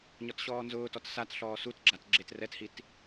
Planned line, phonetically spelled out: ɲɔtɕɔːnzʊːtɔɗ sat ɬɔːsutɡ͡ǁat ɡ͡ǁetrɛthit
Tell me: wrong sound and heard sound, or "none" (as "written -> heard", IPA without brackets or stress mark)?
ɗ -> t